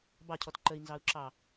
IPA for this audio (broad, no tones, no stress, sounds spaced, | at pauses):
b ɑ cʰ ɔ t ǃ ə i̯ n z ɑ u̯ ǁ ɑ